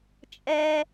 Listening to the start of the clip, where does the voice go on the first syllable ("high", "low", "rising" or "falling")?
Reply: high